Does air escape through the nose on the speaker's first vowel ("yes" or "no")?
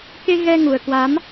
no